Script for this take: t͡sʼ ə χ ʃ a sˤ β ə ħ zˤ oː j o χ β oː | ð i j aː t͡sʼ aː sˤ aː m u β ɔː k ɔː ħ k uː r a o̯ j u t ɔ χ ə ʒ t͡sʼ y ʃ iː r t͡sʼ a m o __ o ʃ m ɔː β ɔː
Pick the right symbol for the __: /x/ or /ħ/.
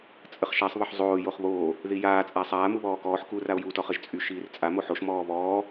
ħ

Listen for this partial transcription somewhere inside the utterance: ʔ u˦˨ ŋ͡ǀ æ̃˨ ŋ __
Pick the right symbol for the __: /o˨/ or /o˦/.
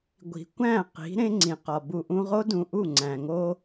o˦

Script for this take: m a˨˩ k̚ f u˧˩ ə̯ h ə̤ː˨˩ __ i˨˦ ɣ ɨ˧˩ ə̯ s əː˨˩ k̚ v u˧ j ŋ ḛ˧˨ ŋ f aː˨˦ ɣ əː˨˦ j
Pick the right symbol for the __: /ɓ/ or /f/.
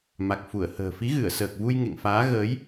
f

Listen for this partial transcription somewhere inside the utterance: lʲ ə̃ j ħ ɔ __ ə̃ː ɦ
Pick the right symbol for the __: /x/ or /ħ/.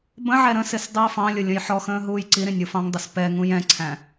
x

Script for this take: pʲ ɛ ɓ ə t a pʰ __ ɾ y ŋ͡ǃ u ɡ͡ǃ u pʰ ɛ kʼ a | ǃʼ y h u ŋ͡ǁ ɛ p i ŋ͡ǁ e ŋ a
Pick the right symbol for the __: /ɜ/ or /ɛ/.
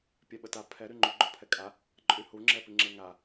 ɛ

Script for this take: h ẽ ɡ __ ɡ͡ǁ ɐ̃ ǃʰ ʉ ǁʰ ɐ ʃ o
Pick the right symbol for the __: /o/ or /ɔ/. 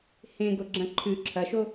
o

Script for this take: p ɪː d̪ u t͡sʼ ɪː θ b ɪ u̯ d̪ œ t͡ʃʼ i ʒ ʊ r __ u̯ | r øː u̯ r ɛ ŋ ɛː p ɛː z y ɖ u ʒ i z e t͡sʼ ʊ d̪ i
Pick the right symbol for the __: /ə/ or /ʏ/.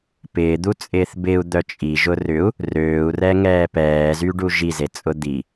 ʏ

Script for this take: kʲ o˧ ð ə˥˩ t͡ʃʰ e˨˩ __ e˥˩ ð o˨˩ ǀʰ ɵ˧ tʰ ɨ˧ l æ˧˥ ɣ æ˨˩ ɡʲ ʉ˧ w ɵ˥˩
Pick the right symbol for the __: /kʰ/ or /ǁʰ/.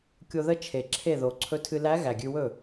ǁʰ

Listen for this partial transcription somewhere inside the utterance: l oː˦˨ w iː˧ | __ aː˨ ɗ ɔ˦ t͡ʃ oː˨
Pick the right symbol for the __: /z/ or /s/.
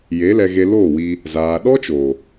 z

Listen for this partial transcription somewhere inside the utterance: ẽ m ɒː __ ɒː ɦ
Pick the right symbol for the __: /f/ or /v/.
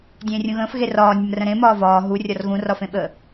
v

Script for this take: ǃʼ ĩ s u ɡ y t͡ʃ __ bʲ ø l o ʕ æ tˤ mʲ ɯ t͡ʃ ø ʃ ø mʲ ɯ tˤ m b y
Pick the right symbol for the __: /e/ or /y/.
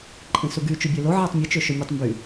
y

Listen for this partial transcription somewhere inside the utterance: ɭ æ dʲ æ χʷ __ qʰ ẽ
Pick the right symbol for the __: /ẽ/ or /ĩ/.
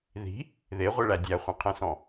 ĩ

